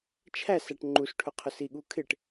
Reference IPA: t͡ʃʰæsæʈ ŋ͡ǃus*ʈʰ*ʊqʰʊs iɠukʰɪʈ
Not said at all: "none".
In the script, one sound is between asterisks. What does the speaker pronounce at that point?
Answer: ʈʰ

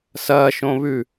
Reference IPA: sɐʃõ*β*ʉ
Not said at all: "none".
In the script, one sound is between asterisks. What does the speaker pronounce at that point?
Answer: β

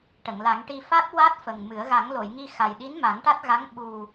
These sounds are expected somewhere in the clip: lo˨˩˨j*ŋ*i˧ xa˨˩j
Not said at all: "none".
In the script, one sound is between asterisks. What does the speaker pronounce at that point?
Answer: ŋ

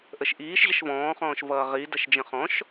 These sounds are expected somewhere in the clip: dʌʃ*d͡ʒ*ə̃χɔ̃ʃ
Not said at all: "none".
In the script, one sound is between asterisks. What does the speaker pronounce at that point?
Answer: d͡ʒ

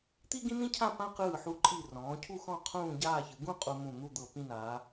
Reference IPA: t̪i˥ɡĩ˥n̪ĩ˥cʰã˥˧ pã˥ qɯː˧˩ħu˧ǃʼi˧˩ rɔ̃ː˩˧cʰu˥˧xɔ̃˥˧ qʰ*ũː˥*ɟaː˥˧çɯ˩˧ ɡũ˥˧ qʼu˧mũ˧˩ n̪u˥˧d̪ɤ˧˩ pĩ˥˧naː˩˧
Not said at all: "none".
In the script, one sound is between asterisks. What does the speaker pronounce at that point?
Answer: ũː˥˧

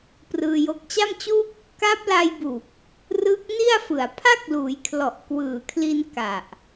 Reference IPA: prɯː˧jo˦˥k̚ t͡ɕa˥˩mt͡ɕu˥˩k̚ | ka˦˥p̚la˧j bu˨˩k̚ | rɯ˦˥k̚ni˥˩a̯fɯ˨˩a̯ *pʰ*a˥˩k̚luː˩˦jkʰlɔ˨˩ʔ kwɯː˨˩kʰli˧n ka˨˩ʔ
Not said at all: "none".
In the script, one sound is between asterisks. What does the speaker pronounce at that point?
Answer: pʰ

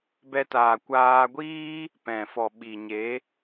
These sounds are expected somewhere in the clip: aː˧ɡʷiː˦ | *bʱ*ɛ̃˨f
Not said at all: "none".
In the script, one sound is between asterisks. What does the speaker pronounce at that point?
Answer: p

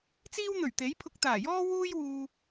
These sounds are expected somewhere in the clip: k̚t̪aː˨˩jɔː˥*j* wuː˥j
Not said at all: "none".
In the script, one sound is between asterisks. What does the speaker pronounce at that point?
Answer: none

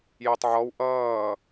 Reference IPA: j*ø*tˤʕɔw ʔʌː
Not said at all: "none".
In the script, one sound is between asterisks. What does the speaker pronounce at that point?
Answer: ø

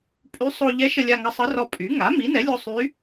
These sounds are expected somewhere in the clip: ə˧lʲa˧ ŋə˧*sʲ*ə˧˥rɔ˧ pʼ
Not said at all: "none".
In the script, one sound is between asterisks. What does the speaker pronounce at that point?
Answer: sˤ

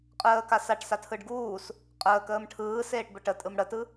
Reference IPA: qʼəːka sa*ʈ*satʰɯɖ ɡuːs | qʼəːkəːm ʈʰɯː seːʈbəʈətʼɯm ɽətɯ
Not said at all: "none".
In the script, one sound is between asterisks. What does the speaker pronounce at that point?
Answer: ʈ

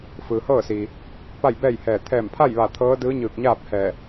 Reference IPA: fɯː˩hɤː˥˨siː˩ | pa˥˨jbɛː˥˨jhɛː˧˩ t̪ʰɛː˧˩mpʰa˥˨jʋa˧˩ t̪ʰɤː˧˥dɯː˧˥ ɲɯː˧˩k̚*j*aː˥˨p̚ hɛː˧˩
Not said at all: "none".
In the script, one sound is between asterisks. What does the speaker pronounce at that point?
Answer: ɲ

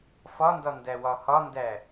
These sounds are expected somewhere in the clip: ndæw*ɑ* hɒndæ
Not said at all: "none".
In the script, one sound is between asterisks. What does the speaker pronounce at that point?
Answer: ɒ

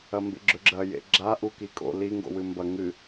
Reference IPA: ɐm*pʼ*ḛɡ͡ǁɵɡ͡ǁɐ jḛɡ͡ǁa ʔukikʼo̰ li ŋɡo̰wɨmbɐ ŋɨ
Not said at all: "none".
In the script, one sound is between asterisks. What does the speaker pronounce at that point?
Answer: b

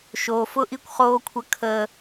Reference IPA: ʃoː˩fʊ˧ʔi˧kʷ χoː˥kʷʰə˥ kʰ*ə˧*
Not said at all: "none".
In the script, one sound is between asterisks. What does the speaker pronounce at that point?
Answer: əː˧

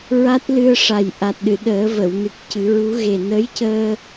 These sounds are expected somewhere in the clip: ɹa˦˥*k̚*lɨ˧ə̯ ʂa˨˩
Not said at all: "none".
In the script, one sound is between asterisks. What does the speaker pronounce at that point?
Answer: t̚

